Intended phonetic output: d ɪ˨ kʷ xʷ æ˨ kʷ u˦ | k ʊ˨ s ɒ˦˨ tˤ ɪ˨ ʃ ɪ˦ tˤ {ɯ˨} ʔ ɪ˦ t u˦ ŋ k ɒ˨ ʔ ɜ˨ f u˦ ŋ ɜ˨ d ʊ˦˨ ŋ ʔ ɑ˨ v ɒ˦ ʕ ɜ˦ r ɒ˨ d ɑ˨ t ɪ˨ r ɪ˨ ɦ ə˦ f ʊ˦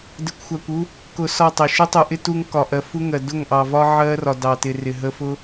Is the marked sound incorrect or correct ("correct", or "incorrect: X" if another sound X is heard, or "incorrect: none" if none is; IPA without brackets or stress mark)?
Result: incorrect: u˨